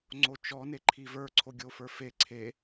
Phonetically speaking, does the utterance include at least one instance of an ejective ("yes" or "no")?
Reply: no